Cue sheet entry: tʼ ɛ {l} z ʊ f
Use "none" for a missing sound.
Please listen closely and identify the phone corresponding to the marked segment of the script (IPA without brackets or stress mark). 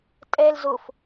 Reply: l